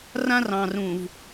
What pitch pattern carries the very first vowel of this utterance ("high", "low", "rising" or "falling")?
high